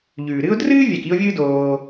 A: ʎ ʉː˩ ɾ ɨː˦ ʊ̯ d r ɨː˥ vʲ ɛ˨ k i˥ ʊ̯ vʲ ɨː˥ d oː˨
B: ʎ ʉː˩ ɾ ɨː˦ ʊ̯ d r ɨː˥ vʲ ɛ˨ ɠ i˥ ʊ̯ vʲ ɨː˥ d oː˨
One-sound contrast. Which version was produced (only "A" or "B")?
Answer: A